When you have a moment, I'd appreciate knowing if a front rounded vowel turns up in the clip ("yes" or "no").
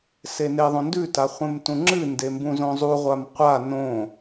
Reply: no